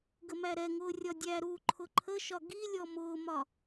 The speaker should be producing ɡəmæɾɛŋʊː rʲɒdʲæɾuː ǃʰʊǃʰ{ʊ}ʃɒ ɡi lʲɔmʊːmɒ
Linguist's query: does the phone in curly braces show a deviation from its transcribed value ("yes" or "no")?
yes